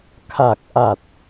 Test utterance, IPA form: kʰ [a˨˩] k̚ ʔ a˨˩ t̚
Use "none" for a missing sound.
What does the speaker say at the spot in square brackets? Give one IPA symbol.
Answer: a˨˩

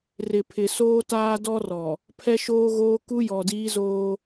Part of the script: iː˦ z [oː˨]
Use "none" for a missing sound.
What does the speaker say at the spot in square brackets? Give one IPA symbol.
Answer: oː˦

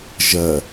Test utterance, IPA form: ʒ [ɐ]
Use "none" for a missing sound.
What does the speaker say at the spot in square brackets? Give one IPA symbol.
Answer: ɐ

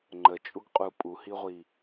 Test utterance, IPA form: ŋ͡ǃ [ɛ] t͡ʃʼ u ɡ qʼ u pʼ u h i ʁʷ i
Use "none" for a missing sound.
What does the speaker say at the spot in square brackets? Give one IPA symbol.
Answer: ə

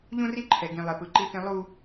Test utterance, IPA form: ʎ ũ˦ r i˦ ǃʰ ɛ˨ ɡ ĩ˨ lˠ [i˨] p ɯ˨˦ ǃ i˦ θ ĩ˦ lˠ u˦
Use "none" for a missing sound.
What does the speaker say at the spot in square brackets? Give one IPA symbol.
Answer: e˨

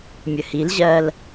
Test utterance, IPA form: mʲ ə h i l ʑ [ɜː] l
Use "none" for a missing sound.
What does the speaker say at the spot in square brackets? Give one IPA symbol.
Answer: ɜː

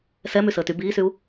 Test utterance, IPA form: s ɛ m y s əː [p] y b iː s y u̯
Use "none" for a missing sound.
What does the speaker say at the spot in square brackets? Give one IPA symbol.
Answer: t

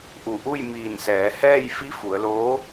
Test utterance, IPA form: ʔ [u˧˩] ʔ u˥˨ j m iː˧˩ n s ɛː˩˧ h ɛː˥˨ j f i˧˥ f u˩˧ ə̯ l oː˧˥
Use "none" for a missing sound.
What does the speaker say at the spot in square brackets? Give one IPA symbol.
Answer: u˧˩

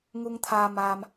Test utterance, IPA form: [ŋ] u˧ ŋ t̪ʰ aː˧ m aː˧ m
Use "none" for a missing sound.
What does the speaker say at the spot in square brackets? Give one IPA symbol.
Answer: ŋ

